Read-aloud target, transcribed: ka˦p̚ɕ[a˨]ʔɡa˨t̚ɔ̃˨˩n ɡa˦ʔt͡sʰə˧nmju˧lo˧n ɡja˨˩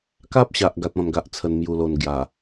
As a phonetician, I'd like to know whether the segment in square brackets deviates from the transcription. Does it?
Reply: no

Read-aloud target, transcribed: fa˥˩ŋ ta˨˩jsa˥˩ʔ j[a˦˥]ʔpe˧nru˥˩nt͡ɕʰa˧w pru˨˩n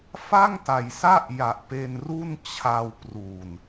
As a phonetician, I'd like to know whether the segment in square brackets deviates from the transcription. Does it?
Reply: yes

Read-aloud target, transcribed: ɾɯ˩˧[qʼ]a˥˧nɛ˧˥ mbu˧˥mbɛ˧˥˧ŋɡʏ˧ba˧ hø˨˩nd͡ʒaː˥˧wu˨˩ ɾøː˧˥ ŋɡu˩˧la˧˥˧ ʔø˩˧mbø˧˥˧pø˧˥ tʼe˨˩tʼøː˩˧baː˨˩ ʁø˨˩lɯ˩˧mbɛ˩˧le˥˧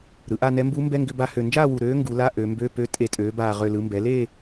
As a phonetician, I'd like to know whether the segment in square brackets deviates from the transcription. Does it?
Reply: yes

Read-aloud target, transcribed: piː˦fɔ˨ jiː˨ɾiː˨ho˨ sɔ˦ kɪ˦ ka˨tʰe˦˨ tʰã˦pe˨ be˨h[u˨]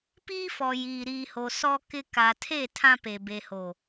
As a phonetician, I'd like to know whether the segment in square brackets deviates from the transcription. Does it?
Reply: yes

